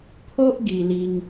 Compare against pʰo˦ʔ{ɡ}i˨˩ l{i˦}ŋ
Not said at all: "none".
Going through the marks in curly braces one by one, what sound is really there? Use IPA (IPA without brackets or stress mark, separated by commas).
ɡ, i˦